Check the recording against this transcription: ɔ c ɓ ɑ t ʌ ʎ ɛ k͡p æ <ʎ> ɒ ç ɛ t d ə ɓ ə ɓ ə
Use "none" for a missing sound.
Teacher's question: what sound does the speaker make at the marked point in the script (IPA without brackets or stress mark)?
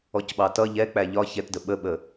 ʎ